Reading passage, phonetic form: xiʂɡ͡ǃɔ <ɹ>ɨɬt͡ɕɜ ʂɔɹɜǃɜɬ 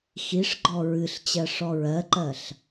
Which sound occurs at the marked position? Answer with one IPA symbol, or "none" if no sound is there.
ɹ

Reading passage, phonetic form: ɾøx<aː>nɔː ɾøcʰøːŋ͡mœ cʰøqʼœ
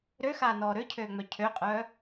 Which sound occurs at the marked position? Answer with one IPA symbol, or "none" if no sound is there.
aː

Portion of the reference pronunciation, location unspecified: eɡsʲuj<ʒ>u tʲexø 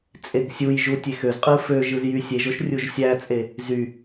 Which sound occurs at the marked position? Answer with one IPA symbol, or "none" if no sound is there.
ʒ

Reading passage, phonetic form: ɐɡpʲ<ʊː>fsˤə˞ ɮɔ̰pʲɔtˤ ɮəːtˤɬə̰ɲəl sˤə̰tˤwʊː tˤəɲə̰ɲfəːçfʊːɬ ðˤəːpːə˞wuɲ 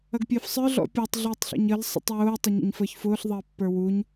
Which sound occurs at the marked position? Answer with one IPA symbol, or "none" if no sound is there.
əː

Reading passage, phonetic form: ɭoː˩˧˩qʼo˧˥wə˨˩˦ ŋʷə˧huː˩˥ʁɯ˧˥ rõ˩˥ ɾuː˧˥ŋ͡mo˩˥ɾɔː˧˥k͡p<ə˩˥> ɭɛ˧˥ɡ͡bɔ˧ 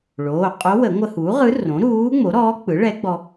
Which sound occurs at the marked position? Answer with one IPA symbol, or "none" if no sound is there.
ɯ˩˥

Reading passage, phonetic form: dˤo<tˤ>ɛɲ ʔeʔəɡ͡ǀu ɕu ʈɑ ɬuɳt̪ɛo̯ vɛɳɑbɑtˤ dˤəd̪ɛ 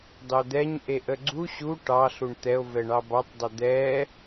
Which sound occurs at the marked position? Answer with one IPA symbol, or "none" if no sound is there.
d̪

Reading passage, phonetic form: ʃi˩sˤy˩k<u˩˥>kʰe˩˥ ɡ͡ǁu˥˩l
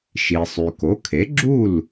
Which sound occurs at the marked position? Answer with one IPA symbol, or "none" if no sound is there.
o˩˥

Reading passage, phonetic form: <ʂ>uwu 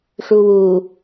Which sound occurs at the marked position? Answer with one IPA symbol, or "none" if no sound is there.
ʂ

